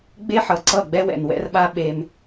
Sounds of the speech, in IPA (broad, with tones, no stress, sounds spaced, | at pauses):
ɡ͡b e˦ ħ ʌ˨ ǀ ʌ˦˨ ɡ͡b ɛ˦ w ɛ̰˨ n w ɛ̰˦ r ɓ a˦ ɓ e˦ m